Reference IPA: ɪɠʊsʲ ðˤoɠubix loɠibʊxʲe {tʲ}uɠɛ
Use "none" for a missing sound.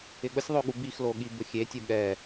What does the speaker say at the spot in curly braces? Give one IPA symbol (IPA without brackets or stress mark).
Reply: tʲ